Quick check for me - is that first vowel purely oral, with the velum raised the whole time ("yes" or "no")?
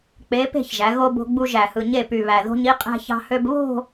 yes